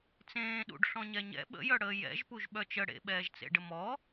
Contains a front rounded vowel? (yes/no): yes